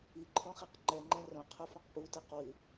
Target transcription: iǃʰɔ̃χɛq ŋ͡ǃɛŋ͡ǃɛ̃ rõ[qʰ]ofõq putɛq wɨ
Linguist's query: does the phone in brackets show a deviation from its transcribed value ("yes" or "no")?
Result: no